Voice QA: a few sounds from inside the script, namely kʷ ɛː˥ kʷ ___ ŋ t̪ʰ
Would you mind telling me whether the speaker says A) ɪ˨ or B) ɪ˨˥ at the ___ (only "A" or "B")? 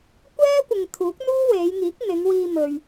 A